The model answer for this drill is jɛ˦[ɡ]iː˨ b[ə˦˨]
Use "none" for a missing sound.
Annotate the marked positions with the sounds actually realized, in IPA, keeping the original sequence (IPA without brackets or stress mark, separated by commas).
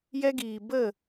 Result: ɡ, ə˦˨